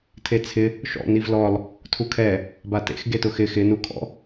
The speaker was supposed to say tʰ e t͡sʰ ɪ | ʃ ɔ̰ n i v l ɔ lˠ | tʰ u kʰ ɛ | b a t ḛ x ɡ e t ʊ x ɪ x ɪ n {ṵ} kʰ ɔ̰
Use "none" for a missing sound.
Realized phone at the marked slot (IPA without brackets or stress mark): u